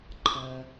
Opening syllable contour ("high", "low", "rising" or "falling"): low